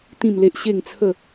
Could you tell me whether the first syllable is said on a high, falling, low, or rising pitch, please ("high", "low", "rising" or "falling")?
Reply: falling